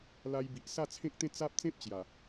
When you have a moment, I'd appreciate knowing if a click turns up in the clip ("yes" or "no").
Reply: no